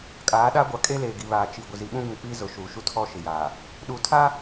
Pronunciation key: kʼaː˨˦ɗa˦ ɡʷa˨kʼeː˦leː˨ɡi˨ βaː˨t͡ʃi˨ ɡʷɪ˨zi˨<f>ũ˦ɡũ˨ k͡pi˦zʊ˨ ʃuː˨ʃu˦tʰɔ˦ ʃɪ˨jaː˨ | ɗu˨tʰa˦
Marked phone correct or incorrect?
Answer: incorrect